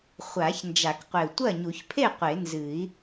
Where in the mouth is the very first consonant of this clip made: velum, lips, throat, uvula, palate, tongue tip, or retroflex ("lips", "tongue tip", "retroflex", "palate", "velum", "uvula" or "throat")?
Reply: uvula